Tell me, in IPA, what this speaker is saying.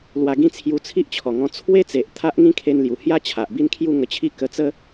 l w a˧ ɡ ĩ˥˧ t͡sʰ j u˧ t͡sʰ i˦ ʔ t͡ɕʰ ɔ˨˩ ŋ ɔ̃˧ t͡sʰ w e˦ t͡s e˨ ʔ t̪ʰ a˦ ʔ ŋ ĩ˦ kʰ e˧ n l j u˨˩ h j a˥˧ t͡ɕʰ a˨ ʔ b i˥˧ n kʰ j u˥˧ ŋ ə˧ t͡ɕʰ i˦ k ə˧ t͡s ə˦

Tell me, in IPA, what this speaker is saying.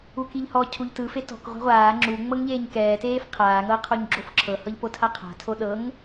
u k i ʎ h ɔ cʰ u ʎ t ɯ f e t ɔ̤ k ʁʷ a̤ ʁʷ aː ŋ͡ǁ u ŋ͡m ɤ ŋ ʎ eː ɲ k ɛː t eː f qʰ aː ŋ ɤ ɐ̯ qʰ o ɲ ɡ͡ǁ o f ǁʰ ɤ h ɤ ʎ p o tʰ a qʰ a̤ tʰ o ɗ ɤ ŋ

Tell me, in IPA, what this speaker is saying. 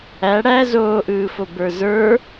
æ ɽ æ z oː ʔ ɯː f o b ə˞ z ə˞

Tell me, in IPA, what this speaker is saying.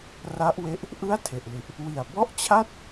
r a˦˥ ʔ w e˦˥ ʔ | ʔ ɯ˥˩ a̯ tʰ e˨˩ ʔ l i˨˩ ʔ | w i˨˩ a̯ b ɔ˥˩ ʔ t͡ɕʰ a˥˩ t̚

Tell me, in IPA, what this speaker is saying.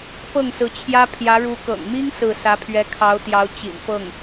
p ɤ˥˩ ŋ s ɹ̩˧˥ t͡ɕʰ j ä˥ pʰ j ä˧˥ ɻ u˧˥ k ɤ̰˨˩ ŋ m i˥ ŋ s ɹ̩˥˩ s ä˧˥ pʰ ɥ ɛ˧˥ kʰ ɑ˧˥ ʊ̯ t̪ j ɑ˧˥ ʊ̯ t͡ɕ ḭ˨˩ n f ɤ˥˩ ŋ

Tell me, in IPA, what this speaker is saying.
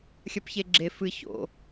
xʲ ɐ p ç e ɡ͡ǁ e f ɨ ç o̰

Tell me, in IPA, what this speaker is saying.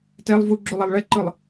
t ɛ lˠ v u ɡ͡ǁ u lˠ a lˠ ɭ ɛ ǃ ɯ lˠ

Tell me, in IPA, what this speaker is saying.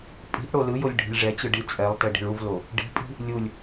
pʼ i̤ ʔ ɽ o l ɯ j o lʲ ɖʱ i̤ lʲ ʐ ɛ t͡ɕ ɯ ɖ i t͡sʼ ɛ lˠ t e ɖ i̤ ɭ u v l o | ɖ i̤ pʼ i̤ | lʲ u lʲ

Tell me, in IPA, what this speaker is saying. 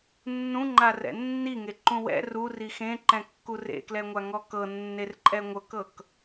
nː ũ ŋ͡ǃ a r ɛ̰ nː i ŋ e ǃ ũ w ɛ̰ r u r i x ẽ ǃ ɛ̃ kː u r ḛ k l ɛ ŋʷ a ŋ ɔ k ɤ nː e r ǃʼ ɛ ŋʷ ɤ k ɤ k

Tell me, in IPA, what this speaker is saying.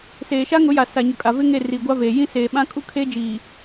s eː˨ ʃ a˦ ŋ ʊ˨˦ j a˨ s a˨ ɲ ʊ˨ kʼ a˨ v ɪ˦ ŋ e˦˨ r iː˨ ɡʷ a˦ v eː˨ j ĩ˦ s eː˨ ɓ ã˦ kʼ u˦ kʰ e˦ d͡ʒ iː˨

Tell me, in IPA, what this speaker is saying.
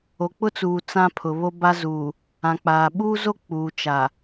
o˨ k͡p ʊ˦ t͡s uː˨ t͡s ã˦ pʰ ʊ˨ β o˦ b a˦ z uː˨ | ã˨ k͡p aː˨ ɓ uː˦ z o˦ k͡p uː˨ t͡ʃ a˨

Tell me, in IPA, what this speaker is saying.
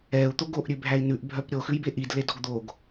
ɛ u̯ t̪ o ɡ o ʔ ɾʲ ʉ bʱ æ i̯ n ʉ ʔ bʱ œ p ɾʲ o x ʉ j b e ʔ i d l e d ɔ ɡ d̪ o ɡ

